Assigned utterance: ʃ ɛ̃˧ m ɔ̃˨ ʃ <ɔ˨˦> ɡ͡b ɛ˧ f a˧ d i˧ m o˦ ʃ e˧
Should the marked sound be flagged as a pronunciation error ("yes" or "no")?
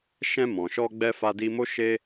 yes